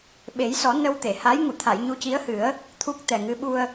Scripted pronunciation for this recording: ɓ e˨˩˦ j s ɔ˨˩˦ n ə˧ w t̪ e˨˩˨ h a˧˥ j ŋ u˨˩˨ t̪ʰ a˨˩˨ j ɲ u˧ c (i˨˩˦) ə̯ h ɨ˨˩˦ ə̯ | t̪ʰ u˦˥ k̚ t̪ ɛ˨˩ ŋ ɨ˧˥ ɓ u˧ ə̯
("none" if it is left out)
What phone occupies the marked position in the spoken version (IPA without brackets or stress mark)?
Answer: i˧˥